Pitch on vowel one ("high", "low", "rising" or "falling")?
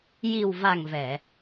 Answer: low